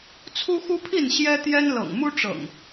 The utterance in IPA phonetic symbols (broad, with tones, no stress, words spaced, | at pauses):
t͡sʰu˦xu˦pʰi˥˨n ɕjɛ˦t̪jɛ˦nlɤ̰˨˩ŋ mu˦ʈ͡ʂɤ̰˨˩ŋ